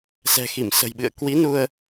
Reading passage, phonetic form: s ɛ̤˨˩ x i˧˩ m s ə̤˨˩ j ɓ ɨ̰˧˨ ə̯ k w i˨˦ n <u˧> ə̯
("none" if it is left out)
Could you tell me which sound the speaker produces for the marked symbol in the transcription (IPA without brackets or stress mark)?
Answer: u˧